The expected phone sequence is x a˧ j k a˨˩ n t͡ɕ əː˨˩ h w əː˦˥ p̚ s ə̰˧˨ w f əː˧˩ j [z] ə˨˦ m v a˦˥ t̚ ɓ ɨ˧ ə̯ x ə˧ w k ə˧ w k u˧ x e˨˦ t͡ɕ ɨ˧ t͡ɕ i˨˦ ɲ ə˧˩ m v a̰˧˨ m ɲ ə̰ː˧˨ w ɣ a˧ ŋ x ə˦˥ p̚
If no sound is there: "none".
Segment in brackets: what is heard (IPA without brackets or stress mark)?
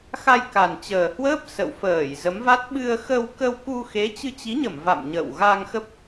z